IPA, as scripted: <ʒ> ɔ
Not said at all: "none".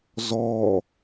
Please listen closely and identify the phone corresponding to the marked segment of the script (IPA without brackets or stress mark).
z